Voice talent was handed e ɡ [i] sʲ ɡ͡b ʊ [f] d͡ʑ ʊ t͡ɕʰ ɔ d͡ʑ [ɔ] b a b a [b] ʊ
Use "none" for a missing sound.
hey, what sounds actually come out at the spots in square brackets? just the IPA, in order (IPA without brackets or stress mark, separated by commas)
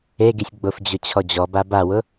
i, f, ɔ, w